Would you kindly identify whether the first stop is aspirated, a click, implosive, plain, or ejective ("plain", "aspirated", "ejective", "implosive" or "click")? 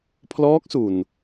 aspirated